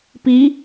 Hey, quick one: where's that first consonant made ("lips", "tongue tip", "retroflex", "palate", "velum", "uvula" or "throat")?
lips